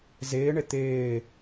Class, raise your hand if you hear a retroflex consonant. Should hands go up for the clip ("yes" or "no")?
yes